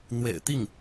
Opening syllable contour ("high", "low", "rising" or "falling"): low